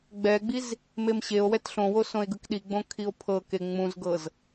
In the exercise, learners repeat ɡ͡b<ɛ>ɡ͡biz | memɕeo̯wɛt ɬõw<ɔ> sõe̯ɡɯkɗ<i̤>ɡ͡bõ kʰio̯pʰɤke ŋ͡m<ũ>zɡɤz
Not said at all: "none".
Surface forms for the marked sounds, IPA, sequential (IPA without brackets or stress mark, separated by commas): ɛ, o, i, ũ